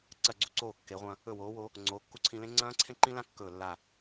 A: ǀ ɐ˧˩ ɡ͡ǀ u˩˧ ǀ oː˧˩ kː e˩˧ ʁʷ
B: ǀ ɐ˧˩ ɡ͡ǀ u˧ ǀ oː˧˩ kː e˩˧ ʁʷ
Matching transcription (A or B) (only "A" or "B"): B